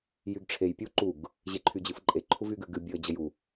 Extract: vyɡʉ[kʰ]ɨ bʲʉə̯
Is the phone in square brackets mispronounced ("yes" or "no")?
yes